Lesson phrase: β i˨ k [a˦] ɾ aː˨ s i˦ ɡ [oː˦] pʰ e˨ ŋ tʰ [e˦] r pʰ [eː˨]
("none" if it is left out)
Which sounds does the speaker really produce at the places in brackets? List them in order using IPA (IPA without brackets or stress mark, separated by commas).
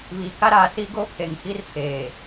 a˦, oː˦, i˦, eː˨